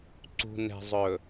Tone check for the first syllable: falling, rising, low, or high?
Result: low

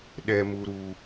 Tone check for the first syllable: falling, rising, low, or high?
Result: low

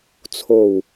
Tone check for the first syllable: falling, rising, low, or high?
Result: low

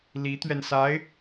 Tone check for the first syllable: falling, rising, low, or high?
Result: rising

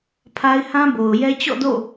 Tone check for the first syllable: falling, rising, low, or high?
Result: high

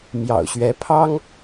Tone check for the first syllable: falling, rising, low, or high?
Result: low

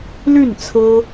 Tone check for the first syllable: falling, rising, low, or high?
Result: falling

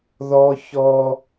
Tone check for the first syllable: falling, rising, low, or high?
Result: high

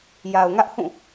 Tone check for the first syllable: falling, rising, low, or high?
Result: low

